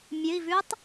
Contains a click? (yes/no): no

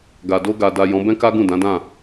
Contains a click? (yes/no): no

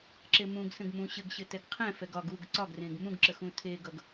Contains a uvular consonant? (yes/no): yes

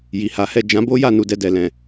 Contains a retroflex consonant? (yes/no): no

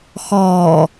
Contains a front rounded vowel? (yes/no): no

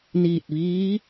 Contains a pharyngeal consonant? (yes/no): no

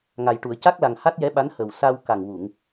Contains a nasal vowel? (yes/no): no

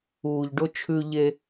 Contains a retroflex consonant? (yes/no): yes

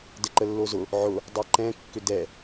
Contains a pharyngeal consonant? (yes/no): yes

